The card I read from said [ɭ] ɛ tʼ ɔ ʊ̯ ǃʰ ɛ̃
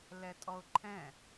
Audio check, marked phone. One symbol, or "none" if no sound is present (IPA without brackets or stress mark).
l